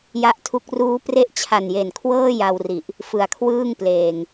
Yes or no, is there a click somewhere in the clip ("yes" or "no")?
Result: no